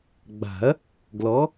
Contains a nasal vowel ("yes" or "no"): no